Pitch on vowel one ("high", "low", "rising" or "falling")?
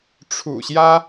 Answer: low